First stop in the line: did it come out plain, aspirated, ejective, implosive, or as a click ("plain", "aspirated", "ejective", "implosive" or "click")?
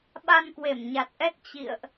implosive